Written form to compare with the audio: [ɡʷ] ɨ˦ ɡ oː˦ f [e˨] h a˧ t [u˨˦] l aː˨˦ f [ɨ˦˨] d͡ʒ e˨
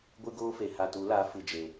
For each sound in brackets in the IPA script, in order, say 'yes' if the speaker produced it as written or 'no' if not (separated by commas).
yes, yes, yes, no